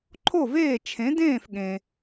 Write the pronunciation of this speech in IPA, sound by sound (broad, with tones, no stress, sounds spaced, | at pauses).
ǃʰ o˥˩ v eː˥˩ t͡ʃʰ ẽ˩˥ d ẽː˥˩ f ɠ ẽ˩